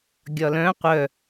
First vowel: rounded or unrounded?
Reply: rounded